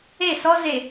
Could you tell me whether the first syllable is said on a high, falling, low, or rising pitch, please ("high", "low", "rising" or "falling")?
falling